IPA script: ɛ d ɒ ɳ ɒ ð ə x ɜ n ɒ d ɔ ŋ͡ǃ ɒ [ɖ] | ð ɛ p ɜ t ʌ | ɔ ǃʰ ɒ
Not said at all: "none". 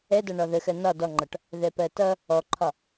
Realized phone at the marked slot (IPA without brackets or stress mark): ʈ